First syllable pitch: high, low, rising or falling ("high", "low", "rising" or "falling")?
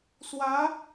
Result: rising